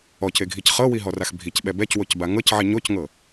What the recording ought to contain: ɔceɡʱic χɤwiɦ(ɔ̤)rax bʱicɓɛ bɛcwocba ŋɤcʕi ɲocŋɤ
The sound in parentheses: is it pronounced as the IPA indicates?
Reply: no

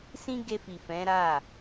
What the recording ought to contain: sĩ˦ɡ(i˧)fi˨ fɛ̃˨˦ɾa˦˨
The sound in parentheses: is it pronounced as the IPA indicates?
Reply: no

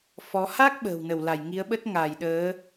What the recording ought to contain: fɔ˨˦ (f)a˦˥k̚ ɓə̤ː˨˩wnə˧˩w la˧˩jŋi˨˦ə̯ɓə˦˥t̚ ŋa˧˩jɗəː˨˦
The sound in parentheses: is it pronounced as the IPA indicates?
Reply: no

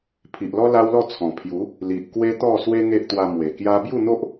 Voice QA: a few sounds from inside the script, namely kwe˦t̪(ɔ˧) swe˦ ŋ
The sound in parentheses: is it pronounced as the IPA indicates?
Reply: no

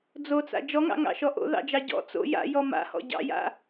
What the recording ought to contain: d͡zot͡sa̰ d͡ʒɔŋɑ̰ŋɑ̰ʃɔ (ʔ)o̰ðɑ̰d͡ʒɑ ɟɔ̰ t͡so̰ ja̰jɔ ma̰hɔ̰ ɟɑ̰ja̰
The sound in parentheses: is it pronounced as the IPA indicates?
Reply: yes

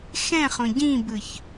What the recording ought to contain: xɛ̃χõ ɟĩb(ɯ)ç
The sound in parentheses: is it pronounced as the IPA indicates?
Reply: yes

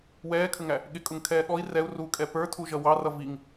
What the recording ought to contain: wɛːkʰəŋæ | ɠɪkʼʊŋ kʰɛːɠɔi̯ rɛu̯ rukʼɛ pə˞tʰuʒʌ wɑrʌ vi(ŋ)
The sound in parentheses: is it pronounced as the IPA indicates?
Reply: yes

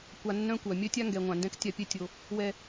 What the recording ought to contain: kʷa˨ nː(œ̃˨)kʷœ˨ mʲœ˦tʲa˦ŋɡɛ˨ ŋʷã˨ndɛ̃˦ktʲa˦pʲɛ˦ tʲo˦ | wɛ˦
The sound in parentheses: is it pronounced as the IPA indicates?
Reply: no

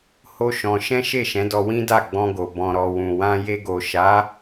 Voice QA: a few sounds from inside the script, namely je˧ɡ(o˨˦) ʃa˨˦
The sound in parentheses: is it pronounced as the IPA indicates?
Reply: no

